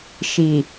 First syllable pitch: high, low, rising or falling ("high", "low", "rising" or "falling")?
low